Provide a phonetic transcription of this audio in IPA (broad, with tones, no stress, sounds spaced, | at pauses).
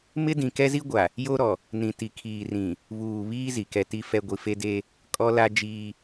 m ɪ˦ d ĩ˨ k ɛ˦ z i˦ ɡʷ a˨ | j o˦ ɾ ɔ˨ | n ĩ˨ t i˨ kʰ iː˨ r ĩ˨ | β uː˨ β iː˦ z i˨ k ɛ˦ t i˦ f ɛ˦ ɡʷ i˨ f e˦ d e˦ | kʼ ɔ˦ l a˦ d͡ʒ iː˦